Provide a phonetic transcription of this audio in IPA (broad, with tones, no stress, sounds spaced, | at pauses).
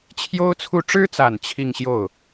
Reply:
t͡ɕʰ j o˥ ʊ̯ t͡sʰ u˥˩ ʈ͡ʂ ɻ̩˥ t͡s a˨˩ n t͡ɕʰ i˥˧ ŋ ɕ j o˥˩ ʊ̯